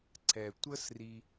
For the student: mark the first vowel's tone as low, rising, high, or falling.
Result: low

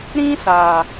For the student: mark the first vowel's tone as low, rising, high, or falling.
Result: high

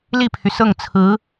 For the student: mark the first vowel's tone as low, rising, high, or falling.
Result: falling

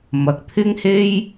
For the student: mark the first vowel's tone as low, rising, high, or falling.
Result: low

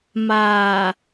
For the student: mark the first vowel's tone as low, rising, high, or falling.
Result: low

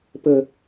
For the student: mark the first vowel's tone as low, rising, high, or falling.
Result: low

